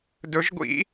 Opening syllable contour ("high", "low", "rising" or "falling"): rising